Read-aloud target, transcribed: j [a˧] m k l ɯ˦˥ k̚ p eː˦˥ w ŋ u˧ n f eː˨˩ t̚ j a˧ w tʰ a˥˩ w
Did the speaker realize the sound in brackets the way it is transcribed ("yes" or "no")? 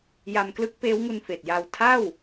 yes